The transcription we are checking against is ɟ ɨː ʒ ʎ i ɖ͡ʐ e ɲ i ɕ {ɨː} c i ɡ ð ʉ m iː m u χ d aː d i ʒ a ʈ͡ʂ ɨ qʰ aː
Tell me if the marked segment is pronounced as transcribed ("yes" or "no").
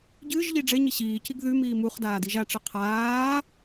no